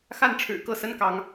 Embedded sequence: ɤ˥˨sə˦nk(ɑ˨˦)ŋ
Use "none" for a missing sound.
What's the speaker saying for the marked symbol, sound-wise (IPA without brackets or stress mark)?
ɑ˨˦